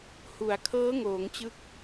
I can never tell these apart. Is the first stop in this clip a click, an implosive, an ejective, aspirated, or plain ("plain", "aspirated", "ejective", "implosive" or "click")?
aspirated